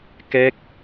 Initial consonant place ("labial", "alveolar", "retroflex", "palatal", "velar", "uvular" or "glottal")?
velar